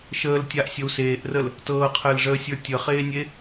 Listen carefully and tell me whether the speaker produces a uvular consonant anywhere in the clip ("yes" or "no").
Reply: yes